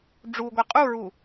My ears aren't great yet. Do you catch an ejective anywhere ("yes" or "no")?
yes